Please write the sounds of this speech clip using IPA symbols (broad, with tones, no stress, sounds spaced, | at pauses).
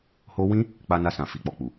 h o˦ w ĩ˦ | k͡p a˦ n a˦ s ã˧ f i˨ k͡p ɔ˨ k͡p u˨